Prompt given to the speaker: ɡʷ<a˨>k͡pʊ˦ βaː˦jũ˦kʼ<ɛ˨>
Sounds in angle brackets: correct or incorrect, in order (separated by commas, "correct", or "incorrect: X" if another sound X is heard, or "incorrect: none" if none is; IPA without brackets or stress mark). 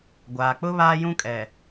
incorrect: aː˨, correct